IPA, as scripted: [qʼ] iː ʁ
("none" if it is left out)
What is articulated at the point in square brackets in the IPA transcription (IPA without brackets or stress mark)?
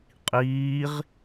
qʼ